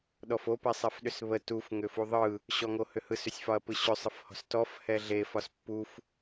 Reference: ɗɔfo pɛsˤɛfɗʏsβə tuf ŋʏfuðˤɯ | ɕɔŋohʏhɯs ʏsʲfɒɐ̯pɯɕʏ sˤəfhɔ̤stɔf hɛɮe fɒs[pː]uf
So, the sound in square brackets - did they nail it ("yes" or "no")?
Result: yes